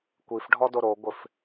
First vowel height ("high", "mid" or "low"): high